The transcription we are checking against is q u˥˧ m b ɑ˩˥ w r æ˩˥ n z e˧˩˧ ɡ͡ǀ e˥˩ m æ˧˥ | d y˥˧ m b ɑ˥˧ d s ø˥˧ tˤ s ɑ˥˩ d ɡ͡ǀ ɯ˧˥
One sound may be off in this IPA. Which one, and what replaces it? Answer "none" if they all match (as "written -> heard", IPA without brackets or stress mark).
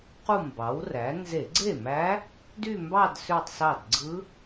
none